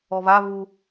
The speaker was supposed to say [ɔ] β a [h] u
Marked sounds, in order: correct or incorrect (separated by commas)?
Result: correct, incorrect